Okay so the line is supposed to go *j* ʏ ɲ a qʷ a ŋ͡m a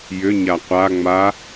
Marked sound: correct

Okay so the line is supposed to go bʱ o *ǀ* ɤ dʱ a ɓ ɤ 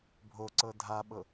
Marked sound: correct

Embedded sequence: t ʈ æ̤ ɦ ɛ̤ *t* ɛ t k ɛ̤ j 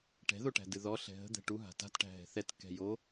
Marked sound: incorrect: θ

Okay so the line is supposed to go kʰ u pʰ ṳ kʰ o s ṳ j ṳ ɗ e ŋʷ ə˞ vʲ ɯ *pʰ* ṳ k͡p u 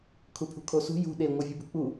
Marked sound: incorrect: b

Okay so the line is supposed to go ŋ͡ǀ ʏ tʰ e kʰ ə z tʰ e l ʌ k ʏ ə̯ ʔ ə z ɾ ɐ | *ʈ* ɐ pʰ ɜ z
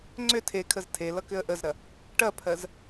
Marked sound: correct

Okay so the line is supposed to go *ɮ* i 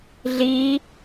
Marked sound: correct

